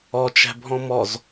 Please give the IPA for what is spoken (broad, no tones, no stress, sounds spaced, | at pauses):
ɔ t͡ʃ æ̤ bʱ ɔ̃ m ɔ z